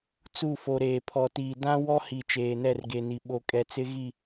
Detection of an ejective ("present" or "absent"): present